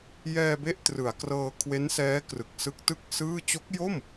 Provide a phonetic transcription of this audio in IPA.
jɛː˧be˦˥ʔ trɯ˩˦a̯krɤː˧ kʰwe˦˥nsɛː˦˥krɯ˨˩k̚ sɯ˦˥k̚tɯ˥˩k̚sɯː˥˩ t͡ɕo˦˥k̚jo˥˩m

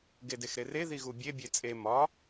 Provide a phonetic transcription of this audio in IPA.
ɡedexɾere ðiɣubʲe bʲet͡sʼe mɒ

